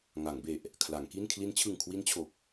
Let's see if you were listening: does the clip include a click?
no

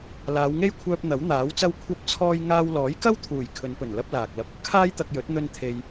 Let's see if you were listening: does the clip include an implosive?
no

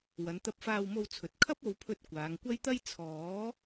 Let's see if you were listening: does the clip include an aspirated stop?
yes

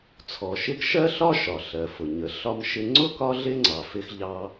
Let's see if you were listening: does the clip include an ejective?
no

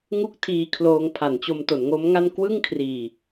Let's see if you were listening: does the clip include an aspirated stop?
yes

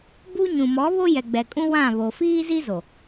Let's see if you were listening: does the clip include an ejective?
yes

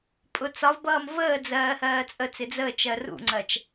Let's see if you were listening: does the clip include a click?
yes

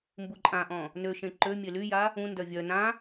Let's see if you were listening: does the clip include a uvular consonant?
no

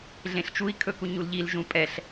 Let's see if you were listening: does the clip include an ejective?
yes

